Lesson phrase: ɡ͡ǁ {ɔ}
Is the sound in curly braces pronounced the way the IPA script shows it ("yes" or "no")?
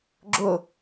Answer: no